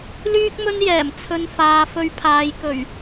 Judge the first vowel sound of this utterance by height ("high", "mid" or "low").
high